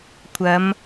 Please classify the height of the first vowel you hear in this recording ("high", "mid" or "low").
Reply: low